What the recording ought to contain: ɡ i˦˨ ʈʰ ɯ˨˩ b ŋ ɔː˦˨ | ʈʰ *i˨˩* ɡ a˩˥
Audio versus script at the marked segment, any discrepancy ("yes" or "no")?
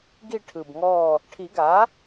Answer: yes